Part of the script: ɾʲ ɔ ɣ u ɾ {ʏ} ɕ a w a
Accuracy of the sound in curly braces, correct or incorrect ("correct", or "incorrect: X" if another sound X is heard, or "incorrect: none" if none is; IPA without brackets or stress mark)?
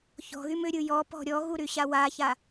incorrect: y